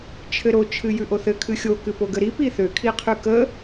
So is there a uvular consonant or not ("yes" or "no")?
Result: yes